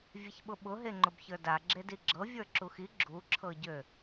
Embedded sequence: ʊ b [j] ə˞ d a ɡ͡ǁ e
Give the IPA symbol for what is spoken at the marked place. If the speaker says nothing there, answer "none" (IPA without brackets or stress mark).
ç